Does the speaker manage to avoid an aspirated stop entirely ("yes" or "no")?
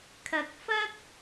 no